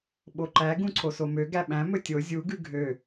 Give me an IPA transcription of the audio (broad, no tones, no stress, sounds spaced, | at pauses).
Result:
ɓ o ǃ æ ɡ ũ ǀʰ o s o m ø ɡ æ ɓ æ̃ m ɵ tʲ o zʲ u ɡ ʉ ɡʱ ø